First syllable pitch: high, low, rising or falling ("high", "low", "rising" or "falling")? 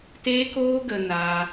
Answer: high